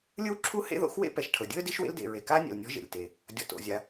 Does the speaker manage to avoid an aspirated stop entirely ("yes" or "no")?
no